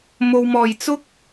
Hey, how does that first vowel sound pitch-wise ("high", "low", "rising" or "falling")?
low